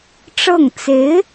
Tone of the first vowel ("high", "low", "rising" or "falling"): falling